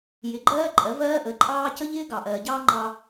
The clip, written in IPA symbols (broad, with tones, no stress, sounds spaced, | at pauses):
j ɪ˨˦ ɡ͡ǃ ɜː˦ ǃʼ ɜ˨˦ v ɜː˦ ʔ ə˨˦ ǃʼ ɑː˦ c ə˦ ʎ ɪː˦ ɡ ɑ˨ ʔ ɜː˨ ɟ ɑː˦ ŋ͡ǃ ɑ˦